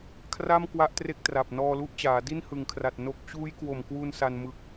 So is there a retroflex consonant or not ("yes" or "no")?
no